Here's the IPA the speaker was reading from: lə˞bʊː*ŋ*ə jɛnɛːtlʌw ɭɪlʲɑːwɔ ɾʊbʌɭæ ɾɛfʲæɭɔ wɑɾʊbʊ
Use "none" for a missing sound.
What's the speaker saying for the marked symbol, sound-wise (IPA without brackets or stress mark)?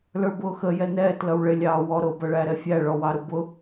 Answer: x